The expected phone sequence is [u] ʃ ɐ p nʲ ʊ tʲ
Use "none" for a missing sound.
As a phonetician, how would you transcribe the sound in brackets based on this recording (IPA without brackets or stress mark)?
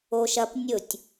o